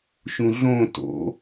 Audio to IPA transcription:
ʃũɮõ to̰

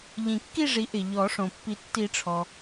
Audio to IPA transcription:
ʎĩ˨˩˦kːi˥˨ʐi˩˥ ʔɪ˩ʎɔ˨˩˦ ʂõ˩pːi˨˩˦ tːi˨˩˦ʈ͡ʂʰɔ˩

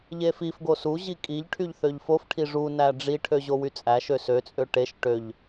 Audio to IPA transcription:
ʎefifɡo suʑi kʼiʎʈʰyʎ θøʎfofʈʰi ʐunæ ɖ͡ʐiʈʰø ʑowyt͡sʼæʃø søt͡sʼø ʈeʃ ʈøʎ

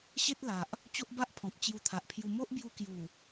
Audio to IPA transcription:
ɕe˦t̚la˨ʔ | t͡ɕo˦ʔba˦ʔpʰɔ̃˨p̚ t͡ɕju˧t̪ʰa˨ʔpʰju˧ mo˦ʔbju˧kju˨˩

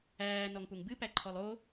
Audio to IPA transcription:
æː nɔŋpuŋbɨ pæǃʰɔlˠo

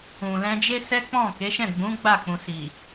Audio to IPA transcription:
ũ˨lɛ̃˧d͡ʒe˦sɛ˦ k͡pɔ̃˦˨ke˨˦ʃɛ̃˦˨ɡ͡bũ˨˦ ɡ͡ba˦˨ k͡pũ˨si˨

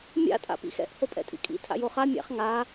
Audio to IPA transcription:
mʲa̰ tʼa̰pḭxɛ̰ʔ hopʼɛ̰tʼḭkʼḭ tʰa̰joχa mʲa̰χ ŋa

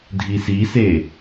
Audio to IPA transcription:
dʱisise

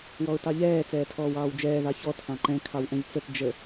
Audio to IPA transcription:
wɔʊ̯tɑʎɛː t͡sɛːtʰɔːwɑːwd͡ʒɛː ðɑçɔ tʰɑ̃ǃɛ̃ kʰɑwʔɛ̃ʎt͡sət d͡ʒə

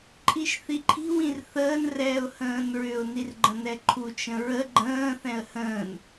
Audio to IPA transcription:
ǃʼiʃθiǃʰi̤ wĩrθəːn rɛːʊ̯hə̃ːnɹʏʊ̯ nirɡ͡ǃə̃nɛǃʰu t͡ʃə̃ɹə ɡ͡ǃə̃ː θɛ̃ə̯hə̃ːn

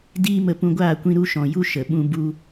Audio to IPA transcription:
diː˦mə˧ pũ˧ɡʷaː˦˨ kʷĩ˧ɾu˧ʃɔ̃˨ju˧ ʃə˨ɓũ˧ bu˧

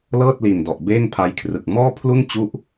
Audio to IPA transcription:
lɤː˥˩t̚li˨˩n dɔ˨˩ʔbeː˥˩ŋpʰa˧jkʰrɯ˨˩k̚ mɔː˥˩pʰlu˥˩nt͡ɕu˦˥ʔ

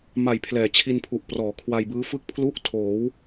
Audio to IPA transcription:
ma˨˩j pʰlɛː˩˦t͡ɕʰi˧npʰu˨˩ʔ prɔː˩˦kʰwa˧jbɯː˦˥fɯ˥˩k̚ pʰlu˦˥ʔtʰoː˩˦w

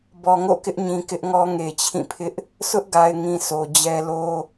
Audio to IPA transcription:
bɔ˨ŋo̰˦˨kɪ˦ʔɲĩ˨ kɪ˦ʔŋɔ˦ ŋe˨t͡ɕʰĩ˦˨pʰɪ˦ʔ | sʊ˦ʔɡa˨ɪ̯ŋĩ˨ so˨d͡ʑɛ˦ lo˦

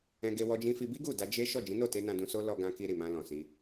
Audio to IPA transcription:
ɛ̃˧ɡe˧ wɔ˧d͡ʒĩ˧fi˧bi˦ ɡu˦˨da˧ d͡ʒe˦ ʃɔ˦˨d͡ʒĩ˨˦no˦˨te˧ nã˧dũ˧so˦ lɔ˧ɡã˧ki˧ ɾi˨mã˧lɔ̃˨si˧

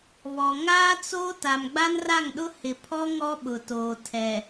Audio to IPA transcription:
βɔ˨ ŋaː˦t͡soː˦ ta˨mɡ͡ba˦nra˦˨ŋɗʊ˦ hɪ˨pʰɔ˦ ŋɔ˦ɓʊ˨toː˨ tʰɛ˨

